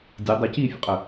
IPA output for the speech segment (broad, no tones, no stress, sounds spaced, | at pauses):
dʲ ɛ dˤ ə c i fʲ ə̰ qʼ ə